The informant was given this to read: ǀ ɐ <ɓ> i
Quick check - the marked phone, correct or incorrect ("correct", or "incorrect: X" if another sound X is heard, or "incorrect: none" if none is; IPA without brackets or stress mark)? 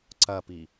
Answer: incorrect: p